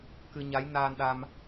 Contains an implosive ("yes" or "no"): yes